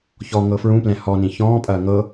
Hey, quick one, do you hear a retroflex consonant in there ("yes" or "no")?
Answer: no